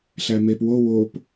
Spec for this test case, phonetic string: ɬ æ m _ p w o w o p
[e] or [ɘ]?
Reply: e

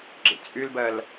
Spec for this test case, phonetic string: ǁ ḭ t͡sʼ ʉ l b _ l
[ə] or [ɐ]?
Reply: ɐ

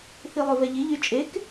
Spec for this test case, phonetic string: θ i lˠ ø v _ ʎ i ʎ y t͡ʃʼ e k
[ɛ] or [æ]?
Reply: ɛ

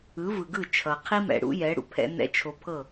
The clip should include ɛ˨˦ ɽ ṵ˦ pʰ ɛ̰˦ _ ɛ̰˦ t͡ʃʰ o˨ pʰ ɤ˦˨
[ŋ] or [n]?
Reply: n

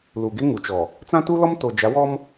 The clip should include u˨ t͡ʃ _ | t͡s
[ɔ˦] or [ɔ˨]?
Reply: ɔ˨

